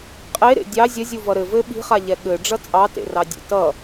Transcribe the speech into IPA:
qʼe ɾḛdʲɑ zʲɐzʲu vʌɾɘ vɘ ɓi̤χa ʎɛɠɘ ɖ͡ʐʌt͡sʼɑtḛ rɑdʲḛtʌ

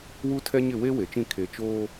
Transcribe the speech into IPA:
wu˦tʰɛ˦ɲɪ˦˨ we˦ we˨t͡ʃĩ˦˨ kʰe˨ t͡ʃoː˦

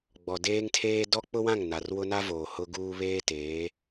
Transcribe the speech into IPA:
ɡ͡bɔ˨deː˦ŋtʰeː˦ dɔ˦k͡pʊ˦wã˦˨ŋ na˨rwʊ˦na˦voː˨ hʊ˦ɡuː˦ βeː˦teː˨˦

